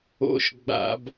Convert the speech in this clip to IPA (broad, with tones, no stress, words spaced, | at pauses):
o̰˧˥ʃɡ͡ba̰˧˩˧b